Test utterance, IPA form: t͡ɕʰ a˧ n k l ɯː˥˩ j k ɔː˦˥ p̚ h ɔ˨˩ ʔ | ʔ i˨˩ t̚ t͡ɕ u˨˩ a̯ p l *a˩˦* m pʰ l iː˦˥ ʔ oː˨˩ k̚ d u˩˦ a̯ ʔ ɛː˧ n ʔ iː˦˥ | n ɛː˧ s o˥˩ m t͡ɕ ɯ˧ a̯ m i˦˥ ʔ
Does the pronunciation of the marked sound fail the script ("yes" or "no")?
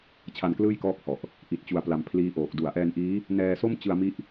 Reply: no